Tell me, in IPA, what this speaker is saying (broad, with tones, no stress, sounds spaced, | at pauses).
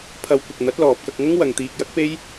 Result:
pʰ ɐ˨˧ w kʷ ɐ˨ k̚ n̪ ɐ˨˥ t̚ l ɔː˨ p̚ k ɐ˧ k̚ ŋ ɐ˥ ŋ w ɐ˨ ŋ t̪ iː˨ k̚ j ɐ˥ k̚ p e˥ j